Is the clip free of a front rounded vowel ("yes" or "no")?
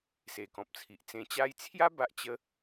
yes